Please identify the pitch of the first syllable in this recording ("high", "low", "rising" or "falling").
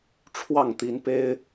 falling